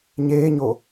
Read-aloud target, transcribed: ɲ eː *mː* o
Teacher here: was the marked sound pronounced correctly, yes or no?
no